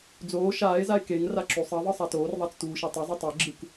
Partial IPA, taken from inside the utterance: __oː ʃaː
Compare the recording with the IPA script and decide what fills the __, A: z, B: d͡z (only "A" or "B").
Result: B